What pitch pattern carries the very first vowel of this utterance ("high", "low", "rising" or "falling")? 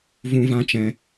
high